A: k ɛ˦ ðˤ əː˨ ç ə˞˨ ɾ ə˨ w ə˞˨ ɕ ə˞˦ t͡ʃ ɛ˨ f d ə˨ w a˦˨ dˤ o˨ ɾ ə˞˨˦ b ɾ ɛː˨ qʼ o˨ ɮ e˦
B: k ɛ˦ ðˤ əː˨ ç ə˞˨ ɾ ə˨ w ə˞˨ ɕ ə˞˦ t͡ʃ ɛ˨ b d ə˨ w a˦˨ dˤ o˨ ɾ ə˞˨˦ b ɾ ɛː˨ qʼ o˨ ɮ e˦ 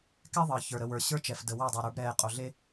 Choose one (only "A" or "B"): A